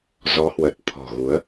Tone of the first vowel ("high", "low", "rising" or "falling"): rising